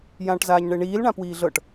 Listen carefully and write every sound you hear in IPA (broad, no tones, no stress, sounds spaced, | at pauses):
j ãː ʈ z aː ɲ ɳ e ɳ iː l ɳ ã p w iː ɮ ɤ ʈ